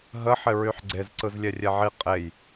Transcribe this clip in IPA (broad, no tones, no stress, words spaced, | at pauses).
ɦəħɪ ɹyħɡ͡ǀez ǀɯzlʲɛrʲɛʕi qʼej